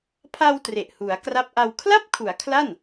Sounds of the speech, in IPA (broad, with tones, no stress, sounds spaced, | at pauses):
pʰ a˧ w t r e˨˩ ʔ h u˩˦ a̯ k r a˦˥ p̚ ʔ a˧ w kʰ l a˥˩ p̚ kʰ u˩˦ a̯ kʰ l a˥˩ n